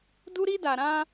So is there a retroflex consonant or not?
no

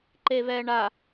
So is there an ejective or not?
no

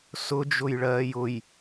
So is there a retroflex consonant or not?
yes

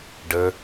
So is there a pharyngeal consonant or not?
no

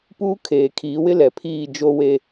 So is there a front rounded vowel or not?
no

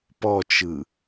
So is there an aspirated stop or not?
no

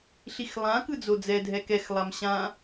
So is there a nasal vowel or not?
yes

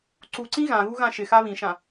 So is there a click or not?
yes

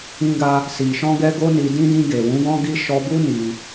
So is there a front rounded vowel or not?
no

